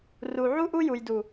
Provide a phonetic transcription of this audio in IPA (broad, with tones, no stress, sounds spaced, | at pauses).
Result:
r u˨ ʕ u˦ ʔ u˦ j u˨ j d u˨